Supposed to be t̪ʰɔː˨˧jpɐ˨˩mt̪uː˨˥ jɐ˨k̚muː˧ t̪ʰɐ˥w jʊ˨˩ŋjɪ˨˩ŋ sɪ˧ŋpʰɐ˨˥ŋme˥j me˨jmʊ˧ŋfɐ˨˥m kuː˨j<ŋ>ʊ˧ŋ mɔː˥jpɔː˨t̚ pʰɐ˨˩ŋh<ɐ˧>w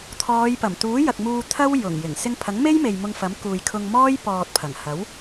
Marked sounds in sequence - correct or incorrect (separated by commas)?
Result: incorrect, incorrect